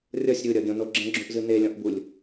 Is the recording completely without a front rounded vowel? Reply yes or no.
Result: yes